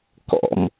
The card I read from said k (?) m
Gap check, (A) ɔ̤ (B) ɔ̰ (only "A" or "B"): B